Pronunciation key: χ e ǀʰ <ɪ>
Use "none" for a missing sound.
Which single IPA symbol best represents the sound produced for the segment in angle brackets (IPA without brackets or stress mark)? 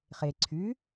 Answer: y